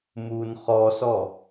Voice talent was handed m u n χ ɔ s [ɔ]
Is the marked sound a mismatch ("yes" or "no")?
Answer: no